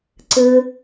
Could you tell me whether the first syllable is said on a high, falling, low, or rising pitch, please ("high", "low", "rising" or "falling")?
high